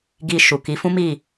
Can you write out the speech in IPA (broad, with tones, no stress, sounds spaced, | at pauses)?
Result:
ɡ i˧ ʃ u˨ k i˨˦ f ũ˦ m i˦˨